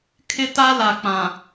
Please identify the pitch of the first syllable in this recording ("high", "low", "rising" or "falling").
high